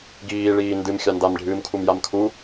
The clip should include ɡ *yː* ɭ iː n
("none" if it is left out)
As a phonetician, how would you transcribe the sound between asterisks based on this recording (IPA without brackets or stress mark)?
iː